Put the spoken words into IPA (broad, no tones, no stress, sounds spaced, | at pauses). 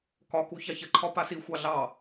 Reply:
k ɒ k u ç ɑ ç ə ǃʰ ɒ p a s i xʷ ɑ ɮ ɑ